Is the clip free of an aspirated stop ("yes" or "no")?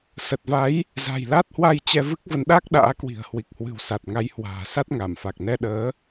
yes